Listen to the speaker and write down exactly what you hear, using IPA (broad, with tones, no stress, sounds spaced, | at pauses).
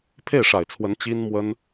pʰ e˥˩ ɪ̯ ʂ a˨˩ ɪ̯ t͡sʰ w ə˧˥ n t͡ɕ i˥ n m w ə˥ n